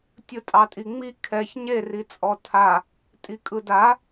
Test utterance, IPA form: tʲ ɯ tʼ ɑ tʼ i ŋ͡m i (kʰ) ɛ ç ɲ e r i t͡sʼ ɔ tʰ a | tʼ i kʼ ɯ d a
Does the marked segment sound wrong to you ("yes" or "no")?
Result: no